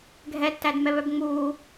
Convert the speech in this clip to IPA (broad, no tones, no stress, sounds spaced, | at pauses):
ɡʱ ɛ tː æ d m ɛ β œ b ŋ͡m uː